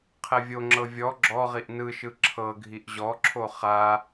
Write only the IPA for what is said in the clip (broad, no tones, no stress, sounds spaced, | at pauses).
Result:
qʰ ɛ vʲ o ŋ͡ǁ ɤ vʲ ɔ ɡ͡ǁ ɔ ʁ i ʔ n ɯ ʃ ɯ ǁʰ ɤ ɡʱ i ʔ ʑ ɔ ǁʰ o χ a